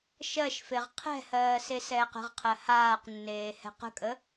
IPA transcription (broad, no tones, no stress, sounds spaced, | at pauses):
ʃ ɜ ʃ f e ʁ qʰ ɛ̤ h ɜː s e s ɛː q ə̤ ʁ qʰ ɜ h aː q nː eː h ɛ̤ q ə̤ kʼ ə